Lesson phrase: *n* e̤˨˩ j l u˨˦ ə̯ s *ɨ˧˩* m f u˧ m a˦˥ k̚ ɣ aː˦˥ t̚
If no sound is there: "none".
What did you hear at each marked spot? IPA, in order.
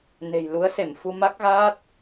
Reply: n, e˧˩

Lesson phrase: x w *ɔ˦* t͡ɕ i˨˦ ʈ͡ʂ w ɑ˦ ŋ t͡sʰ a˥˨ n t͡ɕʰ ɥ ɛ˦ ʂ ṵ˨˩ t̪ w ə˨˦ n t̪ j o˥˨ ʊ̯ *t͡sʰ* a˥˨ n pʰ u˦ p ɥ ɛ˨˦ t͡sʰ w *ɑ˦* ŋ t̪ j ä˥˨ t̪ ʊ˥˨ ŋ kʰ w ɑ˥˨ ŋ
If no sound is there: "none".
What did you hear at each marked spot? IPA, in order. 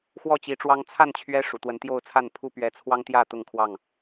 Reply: ɔ˥˨, t͡sʰ, ɑ˦

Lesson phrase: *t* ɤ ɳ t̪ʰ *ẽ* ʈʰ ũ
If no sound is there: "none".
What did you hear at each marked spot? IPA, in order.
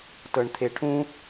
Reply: t, e

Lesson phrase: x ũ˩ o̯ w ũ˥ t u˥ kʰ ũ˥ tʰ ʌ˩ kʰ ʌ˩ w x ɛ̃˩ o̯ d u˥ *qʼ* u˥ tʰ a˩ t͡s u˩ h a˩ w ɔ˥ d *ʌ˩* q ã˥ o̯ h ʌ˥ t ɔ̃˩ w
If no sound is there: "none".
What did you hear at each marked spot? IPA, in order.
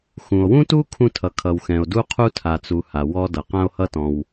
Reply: qʰ, ʌ˩

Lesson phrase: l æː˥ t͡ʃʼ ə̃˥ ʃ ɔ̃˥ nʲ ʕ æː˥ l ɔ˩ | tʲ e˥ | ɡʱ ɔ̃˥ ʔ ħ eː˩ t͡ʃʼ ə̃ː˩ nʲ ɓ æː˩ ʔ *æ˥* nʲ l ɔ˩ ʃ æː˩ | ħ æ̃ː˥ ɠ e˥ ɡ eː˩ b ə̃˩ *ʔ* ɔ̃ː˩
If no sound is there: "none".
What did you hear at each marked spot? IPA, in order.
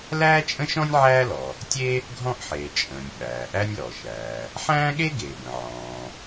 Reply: æ˥, ʕ

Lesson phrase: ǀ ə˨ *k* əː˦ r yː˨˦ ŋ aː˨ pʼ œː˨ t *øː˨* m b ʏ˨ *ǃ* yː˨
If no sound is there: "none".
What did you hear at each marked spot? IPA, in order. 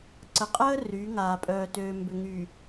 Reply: qʼ, øː˨, ŋ

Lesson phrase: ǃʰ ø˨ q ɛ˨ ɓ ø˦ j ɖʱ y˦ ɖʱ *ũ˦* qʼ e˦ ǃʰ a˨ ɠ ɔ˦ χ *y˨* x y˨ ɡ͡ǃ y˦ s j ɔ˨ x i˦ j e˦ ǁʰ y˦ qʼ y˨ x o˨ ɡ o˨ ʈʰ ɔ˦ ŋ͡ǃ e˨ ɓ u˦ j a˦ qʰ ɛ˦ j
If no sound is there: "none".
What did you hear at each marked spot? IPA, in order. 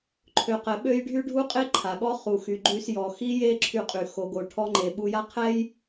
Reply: u˦, u˨

